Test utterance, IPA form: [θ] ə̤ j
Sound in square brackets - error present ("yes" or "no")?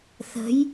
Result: no